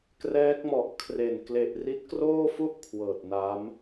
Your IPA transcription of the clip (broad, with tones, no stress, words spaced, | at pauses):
krɛː˦˥k̚mɔ˨˩ʔkʰre˨˩n kle˨˩ʔri˦˥t̚kroː˥˩fu˥˩ʔ kʰwɤː˨˩t̚na˦˥m